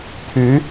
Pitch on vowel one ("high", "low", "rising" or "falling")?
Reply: rising